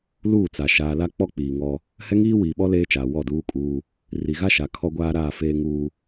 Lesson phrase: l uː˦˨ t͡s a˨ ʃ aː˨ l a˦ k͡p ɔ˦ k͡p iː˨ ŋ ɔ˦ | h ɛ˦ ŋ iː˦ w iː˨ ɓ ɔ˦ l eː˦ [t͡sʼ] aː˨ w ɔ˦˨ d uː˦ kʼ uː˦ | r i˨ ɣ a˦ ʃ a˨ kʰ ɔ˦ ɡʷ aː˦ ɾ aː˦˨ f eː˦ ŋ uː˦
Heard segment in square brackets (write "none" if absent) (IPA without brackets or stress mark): t͡ʃ